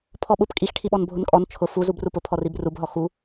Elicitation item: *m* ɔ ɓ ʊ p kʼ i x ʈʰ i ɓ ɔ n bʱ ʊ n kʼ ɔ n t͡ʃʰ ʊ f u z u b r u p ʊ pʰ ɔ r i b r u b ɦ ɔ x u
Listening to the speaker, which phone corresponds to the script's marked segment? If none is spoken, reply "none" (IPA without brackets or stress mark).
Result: pʰ